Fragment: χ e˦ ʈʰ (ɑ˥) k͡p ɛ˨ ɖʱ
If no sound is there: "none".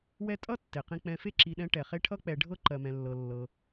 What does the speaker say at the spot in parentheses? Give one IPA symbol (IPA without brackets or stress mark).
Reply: ʌ˥